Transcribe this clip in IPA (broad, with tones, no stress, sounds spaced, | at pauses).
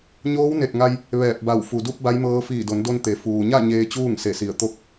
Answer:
ɲ oː˧˥ w n e˧˩ t̚ ŋ a˧ j | ʋ ɛː˧˩ p̚ b a˧˩ w f u˩ d u˧ p̚ b a˧˥ j m ɤː˧˥ f iː˧˩ d o˩˧ n d o˧ n t̪ e˩˧ f uː˩ ɲ a˥˨ ɲ eː˧ t͡ɕ uː˥˨ ŋ s e˧˩ s i˧˩ ə̯ t̪ o˥˨ k̚